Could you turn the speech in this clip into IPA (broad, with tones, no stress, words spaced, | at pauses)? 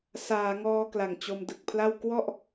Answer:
saː˩˦ŋɔː˧ kla˨˩ŋt͡ɕo˧mdɯ˨˩k̚pʰla˥˩w kwɔ˥˩ʔ